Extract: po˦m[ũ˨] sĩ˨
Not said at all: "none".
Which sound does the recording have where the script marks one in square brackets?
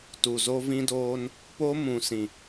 ũ˨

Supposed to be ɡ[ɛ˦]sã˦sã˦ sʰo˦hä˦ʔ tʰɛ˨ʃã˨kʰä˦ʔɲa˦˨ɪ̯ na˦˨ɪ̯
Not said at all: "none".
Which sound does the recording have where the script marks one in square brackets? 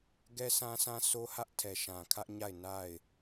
ɛ˦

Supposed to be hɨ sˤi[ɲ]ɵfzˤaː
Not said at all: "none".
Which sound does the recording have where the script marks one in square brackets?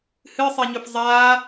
ɲ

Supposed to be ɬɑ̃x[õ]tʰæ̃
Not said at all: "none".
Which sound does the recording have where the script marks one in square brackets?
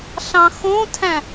õ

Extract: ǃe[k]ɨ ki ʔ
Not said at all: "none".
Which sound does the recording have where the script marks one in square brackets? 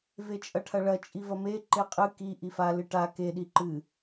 qʼ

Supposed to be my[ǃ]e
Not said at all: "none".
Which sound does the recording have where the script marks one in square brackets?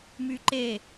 ǃ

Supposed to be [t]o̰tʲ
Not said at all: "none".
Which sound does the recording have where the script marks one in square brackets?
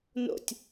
n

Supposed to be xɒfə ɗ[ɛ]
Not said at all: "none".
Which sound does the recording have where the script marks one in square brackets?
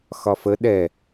ɛ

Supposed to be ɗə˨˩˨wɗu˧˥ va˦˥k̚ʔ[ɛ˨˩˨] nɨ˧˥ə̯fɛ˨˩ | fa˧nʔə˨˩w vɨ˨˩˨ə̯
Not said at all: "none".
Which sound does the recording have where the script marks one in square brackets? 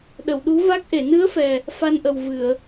e˨˩˨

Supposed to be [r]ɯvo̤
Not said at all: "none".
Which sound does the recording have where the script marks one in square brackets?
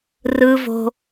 r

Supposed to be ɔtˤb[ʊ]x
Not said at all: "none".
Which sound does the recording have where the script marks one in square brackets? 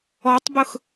ʊ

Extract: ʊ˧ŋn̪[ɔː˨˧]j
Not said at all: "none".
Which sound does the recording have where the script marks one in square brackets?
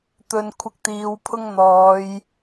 ɔː˨˧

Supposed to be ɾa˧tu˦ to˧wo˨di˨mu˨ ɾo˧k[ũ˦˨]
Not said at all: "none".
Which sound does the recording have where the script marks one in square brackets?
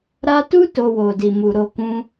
ũ˦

